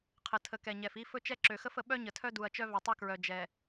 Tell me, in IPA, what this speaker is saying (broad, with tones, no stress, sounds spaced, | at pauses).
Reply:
qʰ ə˨ tʰ ə˨ k ɛ˨ ɲ ɛ˨ f i˦ f ɵ˦ t͡ʃ ɛ˦ ǁ ø˨ x ə˦ f ə˨ ɓ œ˦ ɲ ə˨ tʰ œ˦ d u˨ ɐ̯ t͡ʃ œ˦ v ɛ˨ tˤ œ˦ k ɹ œ˨ d͡ʒ ɛ˨